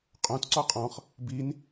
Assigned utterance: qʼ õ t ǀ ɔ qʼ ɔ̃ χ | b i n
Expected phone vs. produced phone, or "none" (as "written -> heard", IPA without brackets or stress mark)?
none